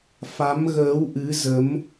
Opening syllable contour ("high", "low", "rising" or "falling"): rising